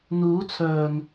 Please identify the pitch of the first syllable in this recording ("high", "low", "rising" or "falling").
rising